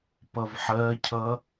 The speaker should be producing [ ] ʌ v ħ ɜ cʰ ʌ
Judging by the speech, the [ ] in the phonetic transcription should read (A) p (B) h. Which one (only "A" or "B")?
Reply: A